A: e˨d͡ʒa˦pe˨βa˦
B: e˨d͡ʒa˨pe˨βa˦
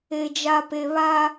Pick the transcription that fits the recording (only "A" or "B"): B